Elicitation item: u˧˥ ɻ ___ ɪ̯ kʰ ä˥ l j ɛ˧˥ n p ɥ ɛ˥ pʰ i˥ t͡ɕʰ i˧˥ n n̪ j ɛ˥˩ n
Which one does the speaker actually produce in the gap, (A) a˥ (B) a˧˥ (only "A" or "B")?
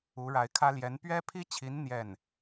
B